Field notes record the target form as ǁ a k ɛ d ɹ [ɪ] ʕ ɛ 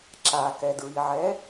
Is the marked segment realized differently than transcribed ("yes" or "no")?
yes